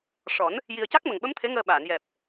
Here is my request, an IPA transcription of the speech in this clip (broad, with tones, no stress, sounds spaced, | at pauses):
ʂ ɔ˨˩˦ n | j i˨˩ ə̯ c a˦˥ k̚ m ə˨˩ ŋ ɓ ə˧˥ m t̪ʰ e˧˥ ŋ əː˧ ɓ aː˨˩˨ n j ɛ˨˩ p̚